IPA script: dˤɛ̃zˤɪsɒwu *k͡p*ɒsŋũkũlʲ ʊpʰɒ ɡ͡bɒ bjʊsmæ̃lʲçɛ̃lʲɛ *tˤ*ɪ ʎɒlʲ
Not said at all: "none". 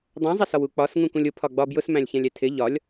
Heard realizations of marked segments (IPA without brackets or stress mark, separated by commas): k͡p, tʰ